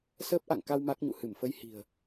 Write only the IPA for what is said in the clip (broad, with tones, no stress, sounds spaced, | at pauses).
s əː˦˥ p̚ ʔ a̰˧˨ ŋ k a˧ w m a˦˥ k̚ ɲ ṵ˧˨ h ɨ˧˩ m f ə˧ j h i̤˨˩ ə̯